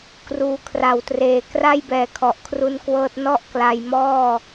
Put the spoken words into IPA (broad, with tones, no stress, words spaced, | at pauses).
kruː˨˩kʰra˨˩wtreː˨˩ kra˥˩jbɛː˨˩kʰɔ˨˩ʔ kʰru˧nkwɤː˦˥t̚nɔ˥˩ʔ kla˧jmɔː˥˩